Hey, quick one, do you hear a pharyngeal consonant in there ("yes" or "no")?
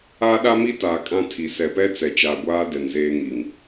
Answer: no